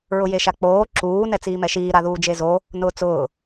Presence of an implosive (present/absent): absent